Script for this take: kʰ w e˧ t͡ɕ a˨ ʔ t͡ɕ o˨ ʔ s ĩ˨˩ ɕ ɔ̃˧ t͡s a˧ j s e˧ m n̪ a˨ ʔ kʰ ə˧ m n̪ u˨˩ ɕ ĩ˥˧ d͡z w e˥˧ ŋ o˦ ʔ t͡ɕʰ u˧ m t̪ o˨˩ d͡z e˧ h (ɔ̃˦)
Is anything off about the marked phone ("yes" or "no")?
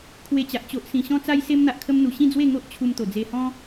no